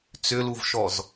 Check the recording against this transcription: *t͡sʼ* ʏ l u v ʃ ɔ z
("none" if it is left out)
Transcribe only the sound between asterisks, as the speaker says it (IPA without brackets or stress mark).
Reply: t͡s